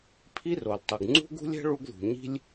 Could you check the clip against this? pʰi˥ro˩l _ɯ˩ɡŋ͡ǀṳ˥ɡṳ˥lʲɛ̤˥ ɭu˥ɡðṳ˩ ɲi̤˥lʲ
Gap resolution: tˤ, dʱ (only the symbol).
tˤ